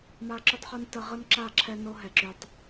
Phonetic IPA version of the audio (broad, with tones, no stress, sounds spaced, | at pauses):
m a˦ ǁ y˦ tˤ χ u˦ n t ə˦ ʁ ə˦ n ǁ a˦˨ ǁʰ ɛ˦ n o˦ ɦ ɛ˨ ǁ y˨ tˤ